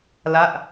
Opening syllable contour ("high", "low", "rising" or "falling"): falling